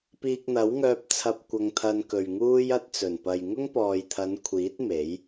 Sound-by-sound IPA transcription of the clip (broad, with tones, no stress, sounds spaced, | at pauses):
p iː˧ k̚ n̪ ɐ˨˥ w ŋ œː˧ p̚ t͡sʰ ɐ˧ p̚ kʷ ɐ˧ ŋ t̪ʰ ɐ˧ n k ɵ˨ ɥ ŋ uː˥ j ɐ˧ t̚ t͡s ɵ˨˩ n p ɐ˨ j ŋ ʊ˥ ŋ p ɔː˨ j t̪ʰ ɐ˨˧ n kʷʰ iː˨˥ t̚ m e˨˥ j